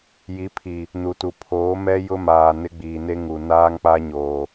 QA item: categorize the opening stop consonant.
aspirated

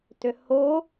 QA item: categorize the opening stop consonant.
plain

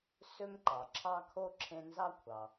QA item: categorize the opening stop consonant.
click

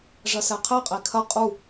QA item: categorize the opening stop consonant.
aspirated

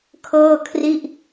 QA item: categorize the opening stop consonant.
aspirated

